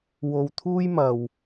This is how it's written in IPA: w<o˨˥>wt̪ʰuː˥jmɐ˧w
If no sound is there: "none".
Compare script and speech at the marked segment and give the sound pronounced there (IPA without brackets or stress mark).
o˧